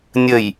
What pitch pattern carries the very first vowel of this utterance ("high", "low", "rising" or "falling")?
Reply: low